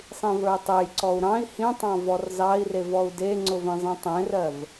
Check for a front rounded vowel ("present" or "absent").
absent